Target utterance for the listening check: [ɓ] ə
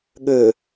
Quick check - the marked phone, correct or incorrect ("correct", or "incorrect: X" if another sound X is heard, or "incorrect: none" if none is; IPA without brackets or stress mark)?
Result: incorrect: ɠ